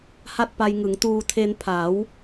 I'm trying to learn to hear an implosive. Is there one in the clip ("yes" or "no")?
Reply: no